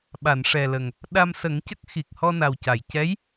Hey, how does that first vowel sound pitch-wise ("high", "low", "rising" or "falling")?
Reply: low